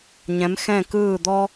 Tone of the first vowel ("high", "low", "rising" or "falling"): rising